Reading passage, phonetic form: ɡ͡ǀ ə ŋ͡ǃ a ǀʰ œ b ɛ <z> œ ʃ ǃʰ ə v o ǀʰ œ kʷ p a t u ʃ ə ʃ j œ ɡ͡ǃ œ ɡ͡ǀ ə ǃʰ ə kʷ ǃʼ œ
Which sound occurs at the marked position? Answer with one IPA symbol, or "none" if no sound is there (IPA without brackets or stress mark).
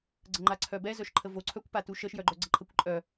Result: z